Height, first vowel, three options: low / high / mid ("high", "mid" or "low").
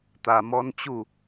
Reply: low